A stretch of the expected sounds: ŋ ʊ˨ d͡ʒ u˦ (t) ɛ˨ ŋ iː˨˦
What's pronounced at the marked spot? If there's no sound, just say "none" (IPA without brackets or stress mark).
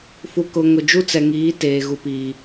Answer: t͡s